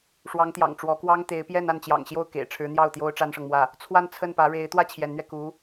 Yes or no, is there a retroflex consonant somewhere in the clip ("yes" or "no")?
yes